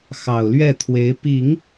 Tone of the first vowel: low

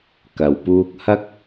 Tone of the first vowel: low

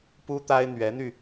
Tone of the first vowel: high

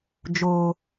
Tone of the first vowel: high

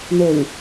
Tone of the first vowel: low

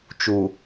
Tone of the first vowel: low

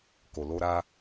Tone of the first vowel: low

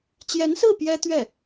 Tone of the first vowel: rising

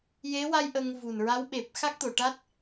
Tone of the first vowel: rising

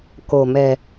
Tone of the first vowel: low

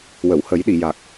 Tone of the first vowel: low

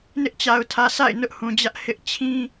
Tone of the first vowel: high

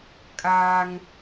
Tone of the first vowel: high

